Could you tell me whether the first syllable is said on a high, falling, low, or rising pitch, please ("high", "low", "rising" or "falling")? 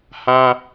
high